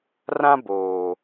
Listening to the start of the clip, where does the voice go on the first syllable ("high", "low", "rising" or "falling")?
high